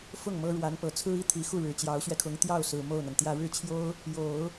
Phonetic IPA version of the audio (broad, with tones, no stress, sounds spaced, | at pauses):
f ʊ˥˩ ŋ m ɤ˥ ɻ w a˧˥ n p ɤ˨˩ t͡sʰ ɹ̩˥ i˥˩ t̪ʰ i˨˩ x u˥˩ ɻ ɻ̩˨˩ t͡ɕ j ɑ˧˥ ʊ̯ ɕ ɥ ɛ˧ kʰ ʊ˧˥ ŋ t̪ j ɑ˥˩ ʊ̯ s ɹ̩˨˩ m o˥˩ ʊ̯ n̪ a˩ n t̪ j ä˥˧ ɻ ɻ̩˥˩ t͡ɕʰ j o˥ ʊ̯ | j o˨˩˦ ʊ̯